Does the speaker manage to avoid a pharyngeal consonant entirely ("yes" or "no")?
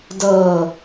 yes